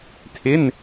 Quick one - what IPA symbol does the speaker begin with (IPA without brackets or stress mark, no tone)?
tʰ